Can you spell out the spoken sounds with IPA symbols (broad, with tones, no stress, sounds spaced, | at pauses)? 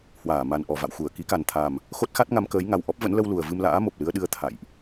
h w aː˧˩ m a˨˩ n ʔ ɔ˧˩ v a̰˧˨ w x u˧˩ ə̯ k i˨˦ k a˨˩ n t̪ʰ a˨˩ m | x o˦˥ t̚ x a˦˥ t̚ ŋ a˨˦ m k əː˨˦ j ŋ a˨˩ w ʔ ɔ˦˥ p̚ v ə̰˧˥ n l ə˧ w l u˨˩ ə̯ v ɨ˧ m l a̰ː˧˥ m o˨˩ p̚ l ɨ˧ ə̯ ɗ ɨ˧ ə̯ t̪ʰ a̰˧˨ j ʔ